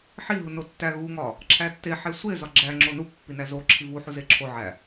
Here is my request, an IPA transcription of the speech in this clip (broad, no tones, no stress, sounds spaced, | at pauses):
ħ i ɦ u n o tː æ ɣ u ŋ ɒ | ǁʰ æ tː e ħ e sʷ e z ɒ ɡ͡ǁ æ ŋ͡ǁ o n u pː i n æ z o ǁʰ i v u ħ u z e ǁʰ o ʕ æ